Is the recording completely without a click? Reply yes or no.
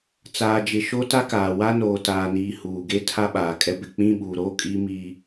yes